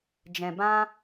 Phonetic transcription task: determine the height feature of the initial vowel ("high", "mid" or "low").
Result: mid